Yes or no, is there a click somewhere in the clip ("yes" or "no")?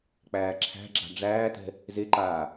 yes